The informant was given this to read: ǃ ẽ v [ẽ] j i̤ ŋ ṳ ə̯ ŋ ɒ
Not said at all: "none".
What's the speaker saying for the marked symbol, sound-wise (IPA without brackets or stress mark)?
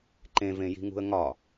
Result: ẽ